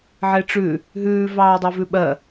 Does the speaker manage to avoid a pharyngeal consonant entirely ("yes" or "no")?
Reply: no